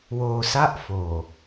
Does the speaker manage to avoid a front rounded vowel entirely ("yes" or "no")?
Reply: yes